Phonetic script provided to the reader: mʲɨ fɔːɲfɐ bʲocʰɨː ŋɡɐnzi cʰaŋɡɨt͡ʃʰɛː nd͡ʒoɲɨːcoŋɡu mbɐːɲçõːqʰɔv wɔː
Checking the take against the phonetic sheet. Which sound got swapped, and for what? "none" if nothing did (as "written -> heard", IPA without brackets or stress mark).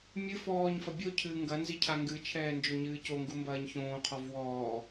none